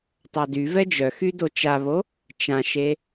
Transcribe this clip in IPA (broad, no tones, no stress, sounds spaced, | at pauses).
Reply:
tˤ a d y v ɛ d͡ʒ œ x y d o t͡ʃ a β o | t͡ʃ ã ʃ e